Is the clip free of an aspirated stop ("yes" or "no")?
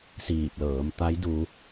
yes